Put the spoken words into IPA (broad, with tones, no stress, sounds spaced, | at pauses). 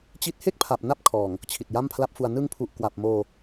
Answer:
t͡ɕ i˦˥ t̚ h e˥˩ k̚ pʰ a˨˩ p̚ n a˦˥ p̚ kʰ ɔː˨˩ ŋ | t͡ɕʰ i˨˩ t̚ j a˥˩ m pʰ l a˦˥ p̚ f u˧ a̯ n ɯ˧ ŋ pʰ u˨˩ ʔ k w a˨˩ p̚ m oː˧